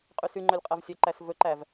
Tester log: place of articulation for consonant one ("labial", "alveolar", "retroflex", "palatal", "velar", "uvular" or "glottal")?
uvular